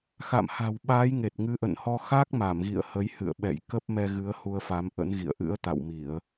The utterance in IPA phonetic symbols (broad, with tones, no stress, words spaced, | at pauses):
xa̰˧˨mha̤˨˩w ɓaː˨˦jŋe˨˩t̚ ŋɨ˨˦ʔə̰˧˨nhɔ˧ xa˦˥k̚ma˧˩mɣḭ˧˨ə̯ hə˨˦jhɨ̰˧˨ə̯ɓɛ̰˧˨j kə˦˥p̚ mɛ˧ɣɨ˨˦ə̯ hu˧ə̯fa˨˦mʔə̰˧˥nɣḭ˧˨ə̯ ʔɨ̰˧˥ə̯t̪a̰˧˨wmi˧˩˨ə̯